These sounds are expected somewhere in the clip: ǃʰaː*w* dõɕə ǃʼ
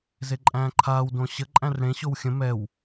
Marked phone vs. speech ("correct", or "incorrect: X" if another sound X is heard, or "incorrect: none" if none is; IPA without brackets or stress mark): correct